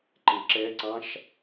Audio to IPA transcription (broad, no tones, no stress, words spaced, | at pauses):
ǃeǁɛǀɑ̃ʃ